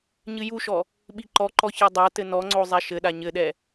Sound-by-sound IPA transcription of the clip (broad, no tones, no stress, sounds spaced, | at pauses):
ɲ ɨ j u ʃ ɔ | ɓ i ǃ ɔ ǃ ɔ ç ɛ dˤ a t ɘ n ɔ ŋ͡ǀ o zˤ ɛ ʃ ɘ ɗ a ɲ ɘ ɗ ɛ